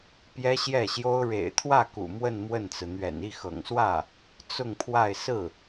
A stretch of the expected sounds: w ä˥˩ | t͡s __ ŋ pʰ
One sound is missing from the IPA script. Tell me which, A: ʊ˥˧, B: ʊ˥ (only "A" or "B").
A